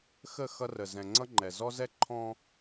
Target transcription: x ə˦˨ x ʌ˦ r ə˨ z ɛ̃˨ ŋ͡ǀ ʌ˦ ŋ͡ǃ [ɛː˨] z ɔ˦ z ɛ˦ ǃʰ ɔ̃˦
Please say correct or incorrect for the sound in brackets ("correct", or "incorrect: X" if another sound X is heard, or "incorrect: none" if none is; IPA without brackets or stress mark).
incorrect: ɛ˨